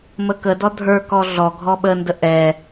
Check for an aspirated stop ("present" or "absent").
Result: absent